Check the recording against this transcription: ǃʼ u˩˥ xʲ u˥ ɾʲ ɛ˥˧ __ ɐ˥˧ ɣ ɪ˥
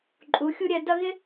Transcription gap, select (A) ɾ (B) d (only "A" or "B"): B